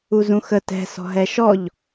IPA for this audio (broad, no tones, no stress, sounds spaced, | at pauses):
u z ũ x ə t ɛ̤ s ɔ̤ ɦ ɛ ʃ ɔ ʎ